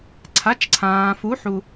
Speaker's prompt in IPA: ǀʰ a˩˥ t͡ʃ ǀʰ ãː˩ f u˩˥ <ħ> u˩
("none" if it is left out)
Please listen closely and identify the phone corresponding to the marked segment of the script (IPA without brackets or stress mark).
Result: ħ